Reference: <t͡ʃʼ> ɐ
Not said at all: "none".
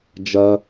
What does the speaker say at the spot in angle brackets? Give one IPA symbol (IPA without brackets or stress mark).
d͡ʒ